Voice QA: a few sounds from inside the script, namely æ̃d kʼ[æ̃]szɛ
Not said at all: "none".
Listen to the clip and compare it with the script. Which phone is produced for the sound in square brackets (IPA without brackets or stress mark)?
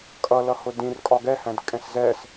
ɛ̃